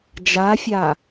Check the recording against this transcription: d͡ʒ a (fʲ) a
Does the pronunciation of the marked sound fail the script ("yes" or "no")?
no